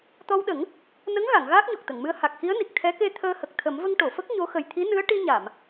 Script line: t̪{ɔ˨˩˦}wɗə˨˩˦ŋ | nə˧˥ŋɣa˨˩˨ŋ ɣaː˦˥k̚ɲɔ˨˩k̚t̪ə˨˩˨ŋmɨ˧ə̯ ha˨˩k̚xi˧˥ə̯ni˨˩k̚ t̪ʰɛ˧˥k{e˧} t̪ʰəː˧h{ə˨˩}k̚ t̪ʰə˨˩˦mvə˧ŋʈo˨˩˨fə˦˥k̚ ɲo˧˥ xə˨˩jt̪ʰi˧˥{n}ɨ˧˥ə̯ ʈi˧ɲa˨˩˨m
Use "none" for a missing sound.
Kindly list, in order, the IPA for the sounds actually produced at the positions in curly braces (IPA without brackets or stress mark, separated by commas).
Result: ɔ˧, e˧, ə˨˩, n